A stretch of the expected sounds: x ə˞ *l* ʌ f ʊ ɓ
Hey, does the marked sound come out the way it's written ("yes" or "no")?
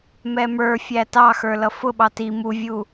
yes